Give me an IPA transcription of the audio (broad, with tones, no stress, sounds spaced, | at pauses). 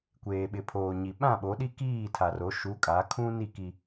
kʷ eː˨ ɓ ɪ˨ pʰ oː˨ ɲ i˨ ɓ ã˦˨ ɓ o˨˦ ɗ i˦ k iː˦˨ tʰ a˨ r o˨˦ ʃ u˨˦ kʼ a˨˦ kʰ ũ˦ n i˦˨ k i˦